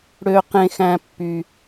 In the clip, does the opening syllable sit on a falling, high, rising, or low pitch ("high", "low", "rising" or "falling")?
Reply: low